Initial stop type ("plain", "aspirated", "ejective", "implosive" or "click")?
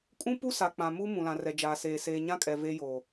ejective